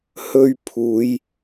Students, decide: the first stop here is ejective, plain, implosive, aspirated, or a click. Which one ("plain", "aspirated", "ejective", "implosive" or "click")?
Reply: aspirated